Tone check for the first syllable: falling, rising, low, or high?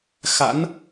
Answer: rising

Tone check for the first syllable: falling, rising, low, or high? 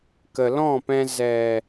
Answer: low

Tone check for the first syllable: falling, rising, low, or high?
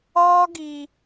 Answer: high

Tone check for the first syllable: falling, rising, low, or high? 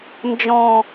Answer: low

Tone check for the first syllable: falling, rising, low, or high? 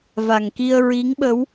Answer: low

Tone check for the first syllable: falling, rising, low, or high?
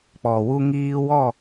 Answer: low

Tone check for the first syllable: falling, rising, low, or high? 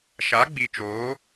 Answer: rising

